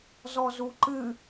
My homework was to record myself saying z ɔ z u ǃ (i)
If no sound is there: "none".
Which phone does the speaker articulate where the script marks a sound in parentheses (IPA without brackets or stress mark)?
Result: ɨ